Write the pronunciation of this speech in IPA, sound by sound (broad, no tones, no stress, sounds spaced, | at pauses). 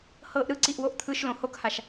h ɤː ʔ ɾ ɯ ǀ i ʔ w o ʔ t̪ʰ ɯ ʃ l õ h o k h a ʃ